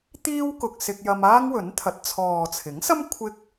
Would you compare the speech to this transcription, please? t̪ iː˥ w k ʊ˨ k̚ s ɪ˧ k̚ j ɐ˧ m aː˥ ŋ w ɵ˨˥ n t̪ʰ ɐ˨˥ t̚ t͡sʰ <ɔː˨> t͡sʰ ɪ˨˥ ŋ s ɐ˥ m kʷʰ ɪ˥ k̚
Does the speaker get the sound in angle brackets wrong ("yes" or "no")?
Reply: no